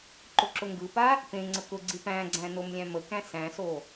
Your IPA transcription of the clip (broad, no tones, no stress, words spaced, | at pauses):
ǃʊǁʊŋɡɯpa | pẽŋ͡ǀə kʊɡ͡ǀi pæ̃ɡ͡ǀæ̃ nomlʲæ̃məkæ̃ sæ̃so